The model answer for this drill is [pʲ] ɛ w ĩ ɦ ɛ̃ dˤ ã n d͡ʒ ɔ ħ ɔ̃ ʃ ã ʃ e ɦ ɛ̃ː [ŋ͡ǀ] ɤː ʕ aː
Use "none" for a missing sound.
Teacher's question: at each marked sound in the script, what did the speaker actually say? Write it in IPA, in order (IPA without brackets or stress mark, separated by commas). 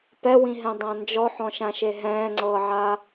p, ŋ͡ǀ